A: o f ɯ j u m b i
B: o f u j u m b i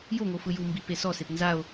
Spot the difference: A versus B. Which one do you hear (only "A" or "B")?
A